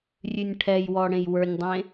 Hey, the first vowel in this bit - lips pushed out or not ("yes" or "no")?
yes